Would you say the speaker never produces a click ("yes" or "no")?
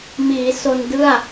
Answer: yes